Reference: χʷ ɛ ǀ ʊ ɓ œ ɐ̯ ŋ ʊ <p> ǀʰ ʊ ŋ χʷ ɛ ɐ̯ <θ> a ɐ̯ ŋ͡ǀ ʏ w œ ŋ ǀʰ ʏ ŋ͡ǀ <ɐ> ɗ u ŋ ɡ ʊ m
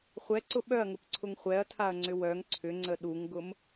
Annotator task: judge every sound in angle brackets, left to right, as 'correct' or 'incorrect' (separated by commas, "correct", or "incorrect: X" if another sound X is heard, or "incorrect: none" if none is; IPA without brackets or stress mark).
correct, incorrect: tʰ, incorrect: ə